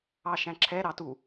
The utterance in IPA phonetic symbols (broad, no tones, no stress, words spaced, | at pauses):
ɑʃæ̃ǁʰɛ ɾɑtu